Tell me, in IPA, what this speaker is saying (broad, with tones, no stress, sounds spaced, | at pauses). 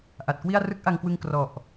ʔ a˨˩ t̚ k w i˥˩ a̯ r ɯ˦˥ k̚ ʔ a˧ ŋ k w ɯ˧ ŋ k r ɔ˨˩ ʔ